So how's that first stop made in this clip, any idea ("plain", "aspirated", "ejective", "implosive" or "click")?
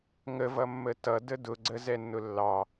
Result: plain